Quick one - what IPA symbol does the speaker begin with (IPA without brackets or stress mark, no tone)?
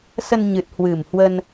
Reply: s